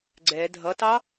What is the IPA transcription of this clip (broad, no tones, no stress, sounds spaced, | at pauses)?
ɡ͡ǀ ɛ dʱ ʌ t ɑ